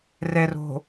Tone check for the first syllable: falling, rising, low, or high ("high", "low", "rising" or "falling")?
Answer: low